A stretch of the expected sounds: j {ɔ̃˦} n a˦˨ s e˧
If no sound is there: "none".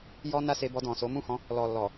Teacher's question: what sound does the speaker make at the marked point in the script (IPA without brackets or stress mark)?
ɔ˦